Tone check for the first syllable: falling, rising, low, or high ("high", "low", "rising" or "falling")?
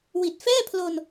low